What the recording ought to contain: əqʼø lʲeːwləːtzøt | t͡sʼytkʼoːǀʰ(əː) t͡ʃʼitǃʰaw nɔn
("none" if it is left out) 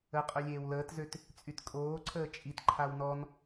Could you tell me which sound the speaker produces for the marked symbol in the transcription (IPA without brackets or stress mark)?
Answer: əː